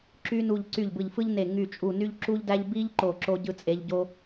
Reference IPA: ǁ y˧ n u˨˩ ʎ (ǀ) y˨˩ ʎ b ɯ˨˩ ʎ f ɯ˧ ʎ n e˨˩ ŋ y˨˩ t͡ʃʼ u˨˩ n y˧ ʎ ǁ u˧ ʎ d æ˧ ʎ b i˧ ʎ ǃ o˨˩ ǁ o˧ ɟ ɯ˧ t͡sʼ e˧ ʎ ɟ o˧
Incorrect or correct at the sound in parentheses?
correct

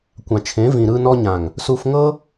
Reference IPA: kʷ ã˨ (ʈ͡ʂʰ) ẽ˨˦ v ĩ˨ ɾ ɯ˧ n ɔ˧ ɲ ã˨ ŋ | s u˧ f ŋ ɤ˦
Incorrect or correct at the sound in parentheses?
incorrect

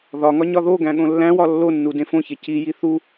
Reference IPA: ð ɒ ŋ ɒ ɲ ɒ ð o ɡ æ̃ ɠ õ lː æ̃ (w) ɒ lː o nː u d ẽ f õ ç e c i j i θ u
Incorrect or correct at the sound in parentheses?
correct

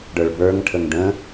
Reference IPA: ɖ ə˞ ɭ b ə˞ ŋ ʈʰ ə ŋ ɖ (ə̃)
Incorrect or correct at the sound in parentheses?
correct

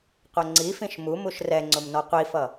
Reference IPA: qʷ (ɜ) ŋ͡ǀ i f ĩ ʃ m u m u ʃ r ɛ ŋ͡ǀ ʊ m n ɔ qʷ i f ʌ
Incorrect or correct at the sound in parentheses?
correct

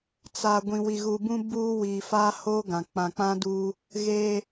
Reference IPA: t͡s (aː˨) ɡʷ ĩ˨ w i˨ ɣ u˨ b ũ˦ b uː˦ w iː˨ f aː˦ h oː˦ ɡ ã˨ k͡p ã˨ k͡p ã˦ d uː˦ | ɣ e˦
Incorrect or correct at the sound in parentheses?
incorrect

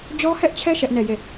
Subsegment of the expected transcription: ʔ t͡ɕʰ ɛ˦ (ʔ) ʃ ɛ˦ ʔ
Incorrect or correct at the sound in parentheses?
incorrect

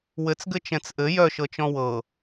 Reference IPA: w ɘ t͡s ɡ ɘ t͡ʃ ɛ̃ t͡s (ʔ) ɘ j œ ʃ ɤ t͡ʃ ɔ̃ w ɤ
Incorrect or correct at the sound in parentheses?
correct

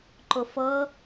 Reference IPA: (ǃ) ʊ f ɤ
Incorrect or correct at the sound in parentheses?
correct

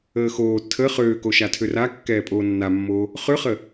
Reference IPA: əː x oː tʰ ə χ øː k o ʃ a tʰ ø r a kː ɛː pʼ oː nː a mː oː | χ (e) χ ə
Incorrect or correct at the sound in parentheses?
incorrect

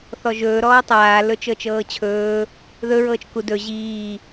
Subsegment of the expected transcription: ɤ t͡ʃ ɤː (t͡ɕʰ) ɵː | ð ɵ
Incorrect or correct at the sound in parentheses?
correct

